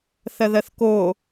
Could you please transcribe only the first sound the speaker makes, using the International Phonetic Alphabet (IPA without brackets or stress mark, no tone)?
θ